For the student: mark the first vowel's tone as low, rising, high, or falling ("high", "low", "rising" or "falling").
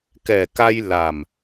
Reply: low